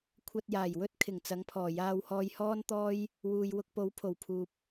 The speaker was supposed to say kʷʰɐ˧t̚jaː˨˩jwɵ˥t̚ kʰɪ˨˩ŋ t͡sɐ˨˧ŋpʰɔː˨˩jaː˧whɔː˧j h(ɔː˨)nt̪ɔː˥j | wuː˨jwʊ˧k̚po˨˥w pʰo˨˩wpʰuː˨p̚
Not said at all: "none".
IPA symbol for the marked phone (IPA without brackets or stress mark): ɔː˥